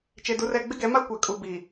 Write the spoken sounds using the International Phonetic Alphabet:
t͡ʃe˨du˨rɛ˨ ɡ͡bɪ˦ɡɛ˨˦ma˦ kʷa˨ kʼu˨bi˨

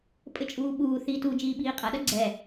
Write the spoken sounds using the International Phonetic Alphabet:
pʼɘt͡ʃʼuːɓuːθiːt u d͡ʒiːɓiːqʼɐɗɐ ɡ͡ǀɛ

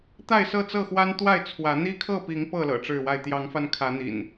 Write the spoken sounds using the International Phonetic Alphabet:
t̪a˥˨ɪ̯sɤ˥˨t͡sɤ˥˨xwa˦n t̪wa˥˨ɪ̯t͡sʰwä˨˦ n̪i˦kʰɤ˥˨pi˨˦ŋ pɤ˥˨ lɤ̰˨˩ʈ͡ʂɻ̩˥˨wa˥˨ɪ̯ t̪jɑ˨˦ŋfa˧n kʰä˨˦n̪ḭ˨˩n

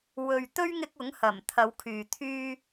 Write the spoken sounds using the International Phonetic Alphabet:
wɵ˨ɥt̪ɵ˥ɥ ŋɪ˧k̚ ʊ˨˥ŋhɐ˨˩m t̪ʰɐ˨˧wkʰyː˨ t̪ʰyː˧

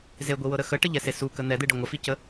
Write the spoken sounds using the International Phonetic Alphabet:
zeɡʷiwɤɾə xəʈəʎɛse sukə n̪ɛd̪eɖə ŋʷɐficə

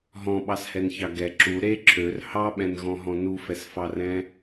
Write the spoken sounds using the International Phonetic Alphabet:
ɦɔ̃ɓɑshɛnçɑ ɡɛ ǁu ɾe ǁʰør hɑɓɛ̃nɣɔ̃ɦɔ̃ nufɛsfɑrɛ̃

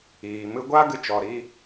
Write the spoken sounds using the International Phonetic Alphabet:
iː˨ mɨ˧ɡʷa˦ ɡɨ˦ t͡ʃɔ˨ɾiː˧

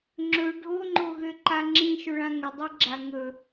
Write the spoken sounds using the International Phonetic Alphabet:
ŋ͡ǁɵ ɖʱoŋ͡ǃoɣøǃa ŋ͡ǁĩʃɵɭã ŋədˤɛɡ͡ǁa ŋɵ

